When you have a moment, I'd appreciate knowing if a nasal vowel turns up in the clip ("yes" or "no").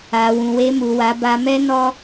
yes